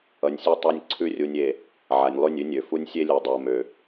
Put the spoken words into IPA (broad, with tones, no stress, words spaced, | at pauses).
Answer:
ʌ˨nʲsʲʉ˦tˤa˦nʲ ǀʰʉ˦rʲu˨nʲe˨ | ʕa˨nʲlˠʉ˦˨nʲʉ˦nʲø˨ fu˦nʲsʲe˦lʲu˨dˤo˨ mø˨